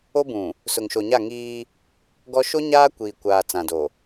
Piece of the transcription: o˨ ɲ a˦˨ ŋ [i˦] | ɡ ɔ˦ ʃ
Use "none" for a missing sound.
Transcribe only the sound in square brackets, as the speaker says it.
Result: iː˦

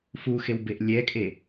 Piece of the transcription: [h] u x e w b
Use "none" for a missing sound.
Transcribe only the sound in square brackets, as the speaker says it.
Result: f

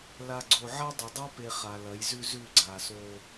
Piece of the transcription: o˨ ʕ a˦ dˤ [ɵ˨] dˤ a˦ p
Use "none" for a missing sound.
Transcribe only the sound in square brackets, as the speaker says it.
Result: ɵ˨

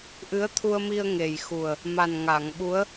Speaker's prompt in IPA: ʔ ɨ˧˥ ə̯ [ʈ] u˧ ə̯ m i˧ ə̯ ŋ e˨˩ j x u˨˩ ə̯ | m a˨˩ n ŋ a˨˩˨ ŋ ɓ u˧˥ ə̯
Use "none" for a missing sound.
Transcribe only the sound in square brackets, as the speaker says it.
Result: t̪ʰ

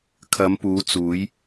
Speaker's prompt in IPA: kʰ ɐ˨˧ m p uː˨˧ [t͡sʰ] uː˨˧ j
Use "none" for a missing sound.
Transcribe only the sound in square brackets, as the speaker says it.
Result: t͡s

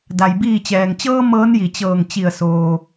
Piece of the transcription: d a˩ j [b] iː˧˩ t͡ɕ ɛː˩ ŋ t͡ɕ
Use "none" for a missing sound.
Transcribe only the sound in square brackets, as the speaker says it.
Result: b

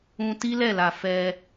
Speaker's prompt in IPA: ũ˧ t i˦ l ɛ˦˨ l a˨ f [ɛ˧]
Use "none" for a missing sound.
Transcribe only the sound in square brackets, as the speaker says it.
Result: ɛ˧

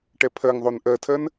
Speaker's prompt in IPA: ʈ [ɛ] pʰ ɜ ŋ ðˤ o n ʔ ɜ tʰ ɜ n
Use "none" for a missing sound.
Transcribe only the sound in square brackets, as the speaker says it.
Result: ɛ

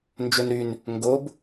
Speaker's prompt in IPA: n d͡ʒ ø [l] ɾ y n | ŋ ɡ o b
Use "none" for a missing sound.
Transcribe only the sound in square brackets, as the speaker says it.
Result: n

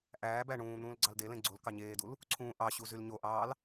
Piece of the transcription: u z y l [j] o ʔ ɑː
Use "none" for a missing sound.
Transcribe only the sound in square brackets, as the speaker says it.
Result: ɲ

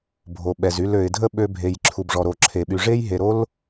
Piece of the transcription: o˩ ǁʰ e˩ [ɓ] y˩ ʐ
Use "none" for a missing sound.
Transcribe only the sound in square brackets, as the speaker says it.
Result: ɓ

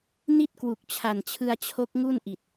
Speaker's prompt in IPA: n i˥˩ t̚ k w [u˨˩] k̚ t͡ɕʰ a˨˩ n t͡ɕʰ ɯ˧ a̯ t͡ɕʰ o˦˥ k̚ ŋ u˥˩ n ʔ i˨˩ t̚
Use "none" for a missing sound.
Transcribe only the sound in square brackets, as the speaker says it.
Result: u˨˩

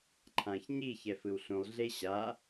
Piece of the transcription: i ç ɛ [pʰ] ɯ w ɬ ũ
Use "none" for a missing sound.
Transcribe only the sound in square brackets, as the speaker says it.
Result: f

